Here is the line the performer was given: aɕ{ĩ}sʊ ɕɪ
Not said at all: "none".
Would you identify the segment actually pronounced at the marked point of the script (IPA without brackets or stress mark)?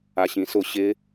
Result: ĩ